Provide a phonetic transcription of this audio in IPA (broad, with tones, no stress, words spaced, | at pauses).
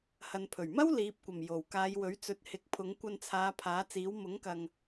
hɐ˨npʰɵ˨˩ɥmɐ˥w liː˨˥p̚kʷɐ˨˩m jo˨˩wkaː˨˧j wɵ˨˥ɥt͡sɵ˨˥t̚hɪ˨˥k̚pʰʊ˨˧ŋ kʷɐ˧nt͡sʰaː˨˧ pʰaː˨˥t͡siː˨˥w mʊ˨˥ŋkɐ˨ŋ